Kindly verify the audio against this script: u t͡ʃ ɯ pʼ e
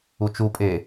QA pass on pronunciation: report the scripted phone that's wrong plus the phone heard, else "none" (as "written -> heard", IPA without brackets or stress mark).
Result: ɯ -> u